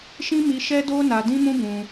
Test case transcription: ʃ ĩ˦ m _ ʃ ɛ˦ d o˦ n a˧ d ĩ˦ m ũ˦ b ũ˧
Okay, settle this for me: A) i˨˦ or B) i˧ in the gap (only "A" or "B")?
B